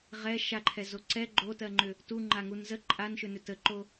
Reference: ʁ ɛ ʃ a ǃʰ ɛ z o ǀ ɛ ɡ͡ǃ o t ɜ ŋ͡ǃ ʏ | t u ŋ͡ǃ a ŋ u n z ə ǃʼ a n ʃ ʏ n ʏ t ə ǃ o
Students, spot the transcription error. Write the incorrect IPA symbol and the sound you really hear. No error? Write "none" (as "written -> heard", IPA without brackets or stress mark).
none